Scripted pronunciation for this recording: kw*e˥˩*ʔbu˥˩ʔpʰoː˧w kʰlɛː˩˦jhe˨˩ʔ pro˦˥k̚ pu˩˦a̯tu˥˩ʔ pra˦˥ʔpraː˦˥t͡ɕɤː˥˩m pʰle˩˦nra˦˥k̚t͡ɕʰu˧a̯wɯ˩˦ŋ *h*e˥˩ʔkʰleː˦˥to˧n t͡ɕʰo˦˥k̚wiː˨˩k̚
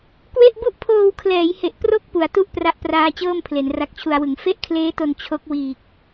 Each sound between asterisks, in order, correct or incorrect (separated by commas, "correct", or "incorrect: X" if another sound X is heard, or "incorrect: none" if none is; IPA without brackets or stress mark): correct, incorrect: f